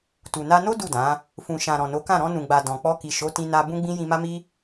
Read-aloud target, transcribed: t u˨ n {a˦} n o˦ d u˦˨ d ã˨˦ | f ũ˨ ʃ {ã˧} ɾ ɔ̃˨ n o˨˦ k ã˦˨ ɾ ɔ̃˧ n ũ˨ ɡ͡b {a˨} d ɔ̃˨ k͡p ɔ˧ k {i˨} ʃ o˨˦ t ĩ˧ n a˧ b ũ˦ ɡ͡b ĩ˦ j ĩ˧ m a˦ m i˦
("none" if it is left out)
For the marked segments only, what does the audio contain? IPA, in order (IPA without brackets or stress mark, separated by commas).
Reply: a˧, ã˨, a˨, i˨